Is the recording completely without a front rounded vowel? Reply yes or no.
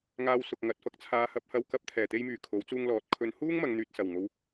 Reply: no